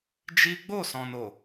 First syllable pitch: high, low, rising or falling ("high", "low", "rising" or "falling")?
high